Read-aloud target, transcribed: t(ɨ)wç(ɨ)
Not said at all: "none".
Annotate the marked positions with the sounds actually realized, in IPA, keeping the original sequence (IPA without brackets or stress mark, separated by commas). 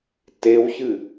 e, ɨ